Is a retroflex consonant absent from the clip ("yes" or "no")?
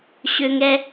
yes